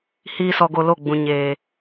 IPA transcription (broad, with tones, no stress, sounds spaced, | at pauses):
h iː˦ s ɔ˧ ɡ o˧ l o˦˨ ɡ͡b ũ˨ ɲ eː˨